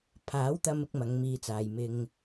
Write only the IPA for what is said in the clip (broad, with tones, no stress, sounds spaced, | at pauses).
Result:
pʰ aː˨˥ w t̪ ɐ˧ m ɪ˥ k̚ m ɐ˨˥ ŋ m iː˧ t͡s aː˨ j m ɪ˧ ŋ